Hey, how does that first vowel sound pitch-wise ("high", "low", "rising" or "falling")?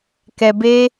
low